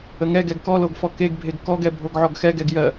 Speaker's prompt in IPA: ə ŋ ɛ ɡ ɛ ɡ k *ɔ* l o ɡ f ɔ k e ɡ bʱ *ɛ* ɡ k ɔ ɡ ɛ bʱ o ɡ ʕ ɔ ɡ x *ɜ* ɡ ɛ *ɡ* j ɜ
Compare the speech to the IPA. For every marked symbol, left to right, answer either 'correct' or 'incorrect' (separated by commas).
correct, incorrect, incorrect, correct